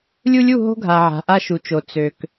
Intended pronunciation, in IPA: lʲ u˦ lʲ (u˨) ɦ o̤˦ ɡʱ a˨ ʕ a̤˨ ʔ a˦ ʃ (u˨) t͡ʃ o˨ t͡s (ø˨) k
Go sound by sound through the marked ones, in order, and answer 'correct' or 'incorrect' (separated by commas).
incorrect, correct, correct